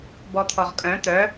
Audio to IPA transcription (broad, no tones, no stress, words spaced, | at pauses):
bɔt̪ʰɔʁkʼœ̃ t̪œ